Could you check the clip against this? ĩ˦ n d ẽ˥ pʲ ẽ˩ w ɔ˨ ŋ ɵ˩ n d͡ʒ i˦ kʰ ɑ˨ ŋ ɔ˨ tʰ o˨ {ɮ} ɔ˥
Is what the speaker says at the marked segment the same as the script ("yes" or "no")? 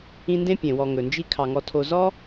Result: no